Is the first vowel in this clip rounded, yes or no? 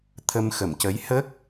no